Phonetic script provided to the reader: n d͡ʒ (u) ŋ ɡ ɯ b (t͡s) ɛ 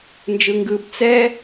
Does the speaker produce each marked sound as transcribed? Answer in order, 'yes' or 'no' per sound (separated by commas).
no, yes